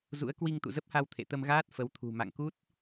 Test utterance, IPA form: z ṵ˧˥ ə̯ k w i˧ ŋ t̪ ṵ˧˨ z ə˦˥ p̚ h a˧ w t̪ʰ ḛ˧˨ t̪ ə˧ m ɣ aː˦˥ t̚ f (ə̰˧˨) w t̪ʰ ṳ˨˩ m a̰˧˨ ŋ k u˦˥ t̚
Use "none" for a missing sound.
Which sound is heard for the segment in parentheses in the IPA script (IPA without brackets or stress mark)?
ə˨˦